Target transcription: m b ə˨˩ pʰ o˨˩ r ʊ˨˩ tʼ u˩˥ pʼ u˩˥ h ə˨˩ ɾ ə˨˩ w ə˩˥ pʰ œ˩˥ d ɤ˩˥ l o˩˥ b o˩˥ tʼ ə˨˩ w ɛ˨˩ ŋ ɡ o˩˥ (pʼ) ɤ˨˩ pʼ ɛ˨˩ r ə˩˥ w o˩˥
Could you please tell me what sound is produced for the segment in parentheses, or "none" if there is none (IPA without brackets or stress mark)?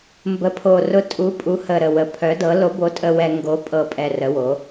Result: pʼ